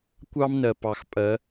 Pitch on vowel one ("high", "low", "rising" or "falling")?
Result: high